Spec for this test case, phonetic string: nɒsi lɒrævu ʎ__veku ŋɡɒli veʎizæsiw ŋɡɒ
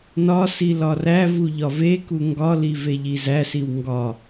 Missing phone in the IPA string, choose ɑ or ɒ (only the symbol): ɒ